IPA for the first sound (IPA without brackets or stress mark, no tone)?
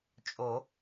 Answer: t͡ʃʼ